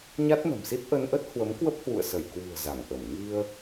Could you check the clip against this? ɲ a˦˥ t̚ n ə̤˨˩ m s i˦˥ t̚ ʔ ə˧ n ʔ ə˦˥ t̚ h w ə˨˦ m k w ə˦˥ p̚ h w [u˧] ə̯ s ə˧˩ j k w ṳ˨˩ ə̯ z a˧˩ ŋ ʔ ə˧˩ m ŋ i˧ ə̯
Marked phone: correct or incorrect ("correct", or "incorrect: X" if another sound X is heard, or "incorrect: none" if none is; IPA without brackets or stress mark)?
incorrect: ṵ˧˨